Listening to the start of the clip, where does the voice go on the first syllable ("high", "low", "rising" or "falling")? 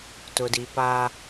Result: low